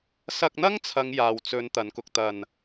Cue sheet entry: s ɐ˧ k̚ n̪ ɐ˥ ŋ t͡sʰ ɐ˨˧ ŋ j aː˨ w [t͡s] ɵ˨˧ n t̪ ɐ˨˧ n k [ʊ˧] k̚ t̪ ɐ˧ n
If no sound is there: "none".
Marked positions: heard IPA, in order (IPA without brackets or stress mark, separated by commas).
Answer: t͡s, ʊ˧